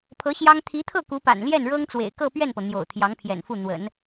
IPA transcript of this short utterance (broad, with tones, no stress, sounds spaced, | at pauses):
pʰ ɤ˧˥ ɕ j ɑ˥ ŋ t̪ʰ i˧˥ t̪ʰ ɤ˥˩ k u˧˥ p a̰˨˩ n l j ɛ˥˩ n ɻ ɤ˥ ŋ t͡s w ḛ˨˩ ɪ̯ k ɤ˥˧ p ɥ ɛ˥˩ n p ɤ˩ n̪ j o̰˨˩ ʊ̯ t̪ʰ j ɑ˧˥ ŋ pʰ j ɛ̰˨˩ n f u˥˩ n̪ w ə̰˨˩˦ n